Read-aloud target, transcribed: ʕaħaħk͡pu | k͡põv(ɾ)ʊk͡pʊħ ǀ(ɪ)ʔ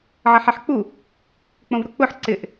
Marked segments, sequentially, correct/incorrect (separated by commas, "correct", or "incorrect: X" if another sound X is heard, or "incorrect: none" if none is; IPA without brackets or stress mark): correct, correct